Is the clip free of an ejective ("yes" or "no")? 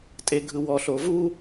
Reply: no